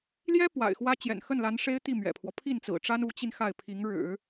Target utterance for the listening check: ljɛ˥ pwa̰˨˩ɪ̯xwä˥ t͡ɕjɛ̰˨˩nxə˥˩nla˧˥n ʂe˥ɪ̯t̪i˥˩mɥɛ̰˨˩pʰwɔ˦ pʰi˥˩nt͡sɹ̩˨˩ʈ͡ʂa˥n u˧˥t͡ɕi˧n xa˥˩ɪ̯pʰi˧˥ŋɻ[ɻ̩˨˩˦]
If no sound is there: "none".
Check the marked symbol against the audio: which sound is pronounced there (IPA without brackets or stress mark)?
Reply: ɻ̩˨˩˦